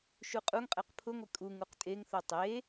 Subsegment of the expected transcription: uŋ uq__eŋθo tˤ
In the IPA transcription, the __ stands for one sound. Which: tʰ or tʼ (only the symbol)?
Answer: tʼ